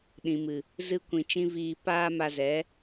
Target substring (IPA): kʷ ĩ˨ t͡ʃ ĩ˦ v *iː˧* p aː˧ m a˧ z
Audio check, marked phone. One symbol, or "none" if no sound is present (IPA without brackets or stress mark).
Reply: iː˧